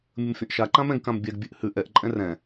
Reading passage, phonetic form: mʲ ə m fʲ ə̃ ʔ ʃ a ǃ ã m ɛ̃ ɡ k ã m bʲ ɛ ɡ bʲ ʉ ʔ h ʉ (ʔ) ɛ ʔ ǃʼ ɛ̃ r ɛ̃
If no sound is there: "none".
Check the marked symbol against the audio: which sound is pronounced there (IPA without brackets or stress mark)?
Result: ʔ